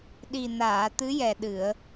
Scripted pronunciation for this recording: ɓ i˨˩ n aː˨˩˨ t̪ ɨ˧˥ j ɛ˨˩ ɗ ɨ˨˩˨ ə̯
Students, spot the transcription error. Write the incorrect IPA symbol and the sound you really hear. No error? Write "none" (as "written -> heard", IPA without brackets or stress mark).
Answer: ɓ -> ɗ